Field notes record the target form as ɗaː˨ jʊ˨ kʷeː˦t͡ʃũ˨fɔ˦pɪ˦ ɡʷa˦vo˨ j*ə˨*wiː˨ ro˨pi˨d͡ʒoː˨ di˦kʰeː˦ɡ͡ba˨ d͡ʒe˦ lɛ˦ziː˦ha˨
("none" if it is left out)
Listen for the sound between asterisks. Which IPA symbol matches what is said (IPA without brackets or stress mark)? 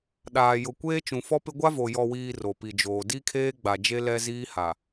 ɔ˨